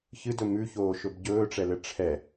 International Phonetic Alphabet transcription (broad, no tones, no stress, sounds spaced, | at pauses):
ç ɨ d ɵ m ʉ ç oː ʃ ɵ b ɟ ɵː ʈ͡ʂ ɛ l ɘ ʈ͡ʂʰ ɛ